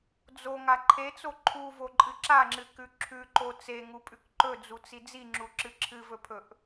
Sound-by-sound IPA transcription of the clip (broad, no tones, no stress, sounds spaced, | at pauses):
d͡z o ŋ a ǃʰ e t͡s o ǃʰ u v o ǃʼ ɨ ǁ a ŋ͡ǁ ɨ k ʉ ǁʰ ʉ ǃ o t͡s e ŋ u pʼ ʉ k ǃ ɵ d͡z u t͡s i d͡z i ŋ͡ǁ u ǁ ɨ ǁʰ ɨ v ɵ pʰ ɵ ʔ